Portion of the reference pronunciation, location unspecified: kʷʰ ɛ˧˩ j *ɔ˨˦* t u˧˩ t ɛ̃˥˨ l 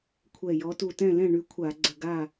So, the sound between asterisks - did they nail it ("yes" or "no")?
yes